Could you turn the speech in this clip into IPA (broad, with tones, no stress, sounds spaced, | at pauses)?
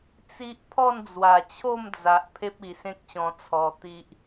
t͡s i˦ ʔ pʰ ɔ˥˧ n d͡z w a˨˩ t͡ɕʰ o˥˧ m d͡z a˨ ʔ pʰ e˦ p̚ i˨˩ s ẽ˦ k̚ ɕ ɔ̃˧ t͡sʰ ɔ˧ t̪ i˦ ʔ